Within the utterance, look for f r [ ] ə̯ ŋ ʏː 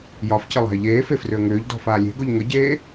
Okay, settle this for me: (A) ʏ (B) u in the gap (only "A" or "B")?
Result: A